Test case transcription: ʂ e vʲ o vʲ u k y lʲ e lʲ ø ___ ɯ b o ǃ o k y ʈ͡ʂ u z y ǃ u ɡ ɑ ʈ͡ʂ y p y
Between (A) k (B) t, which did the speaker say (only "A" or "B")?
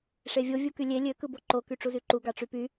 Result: A